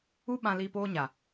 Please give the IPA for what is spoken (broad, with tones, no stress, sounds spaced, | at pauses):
u˦ ɓ ã˧ l iː˧ p oː˧ ɲ a˨